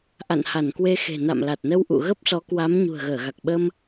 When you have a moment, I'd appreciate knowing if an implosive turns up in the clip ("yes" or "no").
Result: yes